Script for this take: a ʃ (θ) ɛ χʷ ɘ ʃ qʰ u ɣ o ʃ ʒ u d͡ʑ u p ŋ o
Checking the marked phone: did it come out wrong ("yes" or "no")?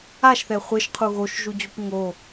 no